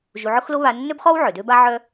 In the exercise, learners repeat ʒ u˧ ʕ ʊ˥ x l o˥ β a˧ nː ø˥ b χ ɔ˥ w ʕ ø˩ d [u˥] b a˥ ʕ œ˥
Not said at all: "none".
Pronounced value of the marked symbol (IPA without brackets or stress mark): ø˥